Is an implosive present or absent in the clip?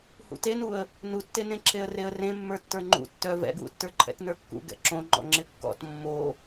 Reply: absent